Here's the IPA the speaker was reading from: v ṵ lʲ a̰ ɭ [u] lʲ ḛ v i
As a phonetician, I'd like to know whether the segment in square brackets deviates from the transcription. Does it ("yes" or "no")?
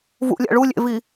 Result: no